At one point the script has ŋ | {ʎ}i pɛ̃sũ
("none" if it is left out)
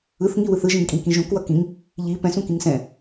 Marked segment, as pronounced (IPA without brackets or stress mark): ʎ